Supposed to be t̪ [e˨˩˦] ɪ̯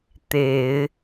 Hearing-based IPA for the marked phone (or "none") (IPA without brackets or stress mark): e˨˩˦